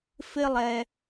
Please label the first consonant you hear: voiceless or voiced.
voiceless